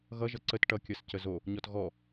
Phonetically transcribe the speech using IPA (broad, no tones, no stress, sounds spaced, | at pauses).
ɣ ʌ ʒ ʌ ǀ ə t ʈ ʌ kʲ ʌ s c ə z o | ɲ ɔ t ɣ ɔ